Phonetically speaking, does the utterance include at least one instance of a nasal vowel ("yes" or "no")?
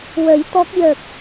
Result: no